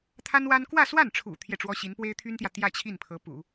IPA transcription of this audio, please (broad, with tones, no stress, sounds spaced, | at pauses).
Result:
t̪ʰ a˥ n w a˥ n k w ä˥˧ s w a˥˩ n ʈ͡ʂʰ ṵ˨˩ t̪ʰ j ɛ˥˩ ʈ͡ʂ w ɔ˥ ɕ i˧˥ n p w e˥ ɪ̯ t̪ʰ y˥ n t̪ j ä˨ t̪ j ä˥˧ t͡ɕʰ i˥˩ n pʰ ɤ˧˥ p ṵ˨˩˦